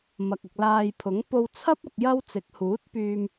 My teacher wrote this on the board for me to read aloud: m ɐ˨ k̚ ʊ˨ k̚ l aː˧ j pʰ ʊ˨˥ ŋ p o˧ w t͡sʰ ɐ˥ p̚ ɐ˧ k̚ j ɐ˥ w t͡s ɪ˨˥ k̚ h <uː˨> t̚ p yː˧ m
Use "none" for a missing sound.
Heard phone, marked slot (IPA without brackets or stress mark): uː˨˥